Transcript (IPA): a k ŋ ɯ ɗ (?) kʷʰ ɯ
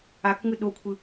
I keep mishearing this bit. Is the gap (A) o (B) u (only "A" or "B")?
A